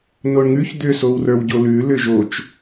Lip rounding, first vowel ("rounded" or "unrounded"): rounded